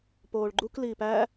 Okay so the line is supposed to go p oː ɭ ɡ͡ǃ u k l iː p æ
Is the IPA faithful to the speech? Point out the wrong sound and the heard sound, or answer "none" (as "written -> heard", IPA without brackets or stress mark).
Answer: none